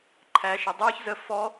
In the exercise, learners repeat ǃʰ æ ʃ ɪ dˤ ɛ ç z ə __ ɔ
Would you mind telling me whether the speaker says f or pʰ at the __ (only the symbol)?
f